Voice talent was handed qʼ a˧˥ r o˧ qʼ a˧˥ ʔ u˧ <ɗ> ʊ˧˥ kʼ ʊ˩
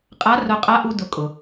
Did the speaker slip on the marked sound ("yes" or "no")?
yes